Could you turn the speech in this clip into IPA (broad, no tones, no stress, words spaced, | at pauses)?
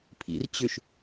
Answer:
pʰḭr t͡ɕʏʃ